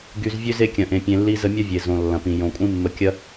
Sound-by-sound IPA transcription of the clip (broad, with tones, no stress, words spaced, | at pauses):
ɡy˧zvʲø˦z e˧kʲɐ̃˨ʔẽ˨ pʲẽ˧lːi˦zə˦ mʲɐ˦vʲe˨ zõ˨lːɐ̃˨pĩ˨ jõ˨kʷʼĩ˦mːə˧ kʲɐ˦